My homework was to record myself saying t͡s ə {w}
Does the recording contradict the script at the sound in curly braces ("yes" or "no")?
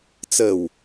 no